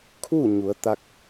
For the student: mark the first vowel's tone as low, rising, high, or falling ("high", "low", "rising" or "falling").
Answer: falling